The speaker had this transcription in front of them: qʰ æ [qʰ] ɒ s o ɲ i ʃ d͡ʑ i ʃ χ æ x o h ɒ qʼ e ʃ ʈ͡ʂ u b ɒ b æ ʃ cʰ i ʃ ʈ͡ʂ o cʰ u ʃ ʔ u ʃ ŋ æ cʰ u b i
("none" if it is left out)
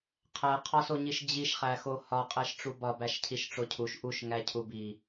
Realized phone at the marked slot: qʰ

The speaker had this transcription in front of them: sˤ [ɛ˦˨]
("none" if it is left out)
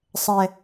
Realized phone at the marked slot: ɛ˨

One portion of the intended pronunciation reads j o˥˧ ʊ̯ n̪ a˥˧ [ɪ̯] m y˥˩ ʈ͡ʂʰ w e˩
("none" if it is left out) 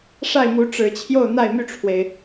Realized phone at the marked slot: ɪ̯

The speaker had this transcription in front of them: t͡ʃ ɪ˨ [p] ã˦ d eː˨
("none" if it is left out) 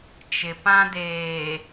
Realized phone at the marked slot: p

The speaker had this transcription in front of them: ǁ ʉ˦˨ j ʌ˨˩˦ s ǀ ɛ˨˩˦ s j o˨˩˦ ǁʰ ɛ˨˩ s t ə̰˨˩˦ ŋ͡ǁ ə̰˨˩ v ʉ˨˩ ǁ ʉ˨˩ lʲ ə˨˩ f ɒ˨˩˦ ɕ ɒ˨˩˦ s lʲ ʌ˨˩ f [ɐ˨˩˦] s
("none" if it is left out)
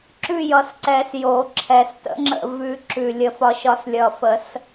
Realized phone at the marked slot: ə˨˩˦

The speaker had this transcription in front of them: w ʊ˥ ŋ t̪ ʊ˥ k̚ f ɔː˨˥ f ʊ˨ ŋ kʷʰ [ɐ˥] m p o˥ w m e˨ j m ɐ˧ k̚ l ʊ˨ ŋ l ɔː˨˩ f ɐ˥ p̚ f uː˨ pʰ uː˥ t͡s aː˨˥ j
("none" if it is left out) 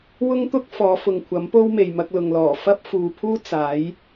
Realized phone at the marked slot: ɐ˨˥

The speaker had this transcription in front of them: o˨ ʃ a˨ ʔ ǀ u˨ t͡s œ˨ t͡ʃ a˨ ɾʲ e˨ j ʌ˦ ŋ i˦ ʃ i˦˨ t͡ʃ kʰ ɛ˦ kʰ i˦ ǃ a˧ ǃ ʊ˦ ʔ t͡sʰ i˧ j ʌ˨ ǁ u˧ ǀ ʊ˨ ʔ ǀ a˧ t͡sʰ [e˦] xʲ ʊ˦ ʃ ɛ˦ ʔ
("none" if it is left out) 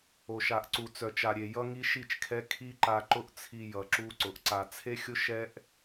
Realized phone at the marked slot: e˦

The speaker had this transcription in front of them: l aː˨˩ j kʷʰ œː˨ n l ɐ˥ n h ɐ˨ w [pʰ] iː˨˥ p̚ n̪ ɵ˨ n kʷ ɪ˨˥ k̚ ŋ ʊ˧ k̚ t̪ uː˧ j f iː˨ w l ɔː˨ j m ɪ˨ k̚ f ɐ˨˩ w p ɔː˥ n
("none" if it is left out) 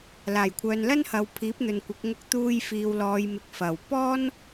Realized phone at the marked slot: pʰ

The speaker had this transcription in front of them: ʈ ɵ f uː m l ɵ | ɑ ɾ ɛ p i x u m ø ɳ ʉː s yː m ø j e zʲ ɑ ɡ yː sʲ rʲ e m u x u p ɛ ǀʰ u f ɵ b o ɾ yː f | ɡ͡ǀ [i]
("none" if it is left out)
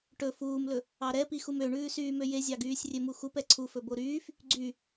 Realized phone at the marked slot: y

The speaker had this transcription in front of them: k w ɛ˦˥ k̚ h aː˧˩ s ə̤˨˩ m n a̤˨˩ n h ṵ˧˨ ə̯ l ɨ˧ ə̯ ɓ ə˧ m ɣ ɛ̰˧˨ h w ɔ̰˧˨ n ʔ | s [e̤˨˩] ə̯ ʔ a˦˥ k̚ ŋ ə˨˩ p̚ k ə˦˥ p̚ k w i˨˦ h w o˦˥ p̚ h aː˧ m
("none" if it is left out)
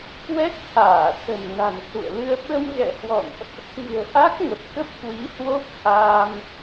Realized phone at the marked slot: i̤˨˩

